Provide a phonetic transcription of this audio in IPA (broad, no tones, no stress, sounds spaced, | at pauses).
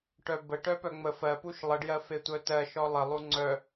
ʈ œ b ə ʈ œ p œ ŋ͡m ə f ɜ p u ʃ lˠ ə ɖ j ɜ f e tʷ œ t ɜ ʃ ɔ lˠ ə lˠ u ŋ͡ǀ œ